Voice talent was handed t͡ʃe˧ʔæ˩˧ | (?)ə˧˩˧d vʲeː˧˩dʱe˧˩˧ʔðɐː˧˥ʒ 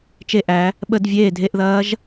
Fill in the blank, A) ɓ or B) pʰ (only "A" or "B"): A